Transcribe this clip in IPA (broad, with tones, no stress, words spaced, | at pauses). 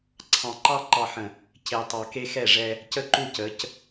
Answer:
ǀʰɑ̃˨ǃɑ˦ ǃɑ˨ħə̃˨ | ce˨tˤɑ˨ ke˦xɛ˦˨ʐɛ˦ | cə˦˨ǃu˦˨cə˨˦c